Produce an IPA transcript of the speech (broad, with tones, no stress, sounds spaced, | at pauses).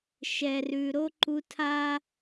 ʃ ɛ˨ r ʉ˨ ɾ o˦ ǃ u˦ tʰ a˦